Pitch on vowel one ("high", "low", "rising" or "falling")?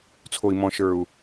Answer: low